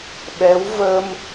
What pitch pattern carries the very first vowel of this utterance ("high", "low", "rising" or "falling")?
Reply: rising